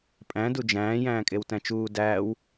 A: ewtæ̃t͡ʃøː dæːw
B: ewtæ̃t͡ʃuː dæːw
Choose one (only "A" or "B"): B